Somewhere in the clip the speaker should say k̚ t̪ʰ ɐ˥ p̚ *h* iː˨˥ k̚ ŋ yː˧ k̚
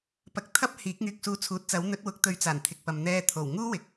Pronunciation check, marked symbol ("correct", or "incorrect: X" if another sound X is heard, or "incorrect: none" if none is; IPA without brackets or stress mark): correct